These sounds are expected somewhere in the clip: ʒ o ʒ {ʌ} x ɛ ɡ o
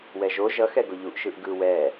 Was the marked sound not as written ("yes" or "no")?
no